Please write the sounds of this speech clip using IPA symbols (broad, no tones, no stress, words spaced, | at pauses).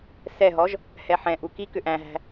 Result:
sɛɦɔʒ | hɛħɛ̃ʔu ki kʏʔæ̃ɦæ̤